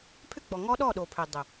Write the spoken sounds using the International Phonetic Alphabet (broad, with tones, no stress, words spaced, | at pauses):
pʰʏ˦ɡ͡bɔ˨ ŋɔ˦ɗɔ˦˨ɗo˨pʰʏ˨ dˤʏ˨